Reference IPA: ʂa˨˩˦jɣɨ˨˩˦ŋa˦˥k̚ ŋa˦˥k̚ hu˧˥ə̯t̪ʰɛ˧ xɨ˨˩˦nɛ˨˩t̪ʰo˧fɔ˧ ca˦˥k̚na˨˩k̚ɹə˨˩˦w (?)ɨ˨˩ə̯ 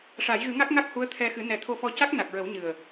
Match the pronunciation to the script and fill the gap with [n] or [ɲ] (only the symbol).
ɲ